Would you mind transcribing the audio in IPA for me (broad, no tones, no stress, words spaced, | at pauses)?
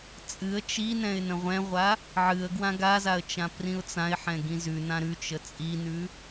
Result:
t͡sʼɨə̯ t͡ʃinɛ̃ɪ̯ nə̃ʁʷɛ̃ʁʷa | ʕɨə̯ ɡwãɡazaə̯ t͡ʃãprĩʊ̯t͡sãɪ̯ħɛ̃ ɡĩzʉnã ɾʉt͡ʃə t͡sʼinʉ